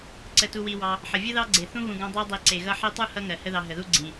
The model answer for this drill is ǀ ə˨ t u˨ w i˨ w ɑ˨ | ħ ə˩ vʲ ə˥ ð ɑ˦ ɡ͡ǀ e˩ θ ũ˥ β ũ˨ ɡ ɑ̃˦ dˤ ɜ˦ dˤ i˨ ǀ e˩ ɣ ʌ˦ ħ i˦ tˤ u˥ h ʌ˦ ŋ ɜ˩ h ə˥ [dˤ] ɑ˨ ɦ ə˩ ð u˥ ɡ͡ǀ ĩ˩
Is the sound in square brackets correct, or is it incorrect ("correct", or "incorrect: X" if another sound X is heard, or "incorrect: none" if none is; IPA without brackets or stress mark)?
incorrect: ð